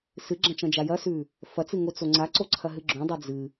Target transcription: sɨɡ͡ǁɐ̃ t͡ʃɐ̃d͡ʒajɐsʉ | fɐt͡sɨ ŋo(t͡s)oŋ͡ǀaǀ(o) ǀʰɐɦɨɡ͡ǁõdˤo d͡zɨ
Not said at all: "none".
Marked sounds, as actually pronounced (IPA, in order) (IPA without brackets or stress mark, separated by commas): t͡s, o